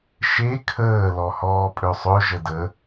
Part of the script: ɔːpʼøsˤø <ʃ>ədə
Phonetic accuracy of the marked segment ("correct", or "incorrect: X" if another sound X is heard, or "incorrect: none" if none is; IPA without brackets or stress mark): incorrect: ʒ